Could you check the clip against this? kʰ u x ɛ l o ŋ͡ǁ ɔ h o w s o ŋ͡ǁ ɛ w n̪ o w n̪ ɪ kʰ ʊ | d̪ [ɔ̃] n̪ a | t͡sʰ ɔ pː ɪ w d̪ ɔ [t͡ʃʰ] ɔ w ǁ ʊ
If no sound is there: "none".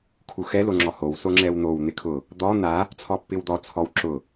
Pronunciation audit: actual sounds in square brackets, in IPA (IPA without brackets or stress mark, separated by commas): ɔ, t͡sʰ